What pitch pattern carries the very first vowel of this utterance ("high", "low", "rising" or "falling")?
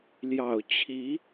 low